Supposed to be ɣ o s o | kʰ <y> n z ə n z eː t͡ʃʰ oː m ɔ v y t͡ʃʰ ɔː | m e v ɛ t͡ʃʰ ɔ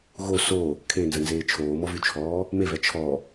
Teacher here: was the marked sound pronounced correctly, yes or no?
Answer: no